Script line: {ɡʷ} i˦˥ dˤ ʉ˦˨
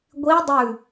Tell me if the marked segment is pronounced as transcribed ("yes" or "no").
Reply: yes